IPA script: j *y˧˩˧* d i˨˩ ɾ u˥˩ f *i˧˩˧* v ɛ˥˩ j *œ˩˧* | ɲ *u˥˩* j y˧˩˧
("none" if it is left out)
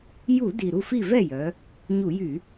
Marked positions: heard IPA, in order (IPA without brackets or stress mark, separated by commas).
u˧˩˧, i˥˩, œ˩˧, u˧˩˧